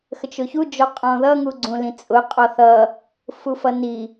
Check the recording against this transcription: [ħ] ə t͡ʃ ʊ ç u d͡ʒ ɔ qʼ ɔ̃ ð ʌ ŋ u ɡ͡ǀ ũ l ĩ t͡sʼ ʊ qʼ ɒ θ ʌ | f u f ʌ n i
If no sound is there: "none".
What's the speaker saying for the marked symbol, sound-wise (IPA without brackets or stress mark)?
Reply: x